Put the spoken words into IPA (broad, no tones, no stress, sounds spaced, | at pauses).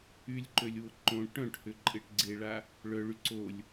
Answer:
y lʲ ǃ ø lʲ w ʊ ǃ õ ʈ œ̃ ʈ h ʏ ǃʼ ɪ ʈ ɡ͡ǀ e ɭ a | ɭ œ ɭ y ǀ o lʲ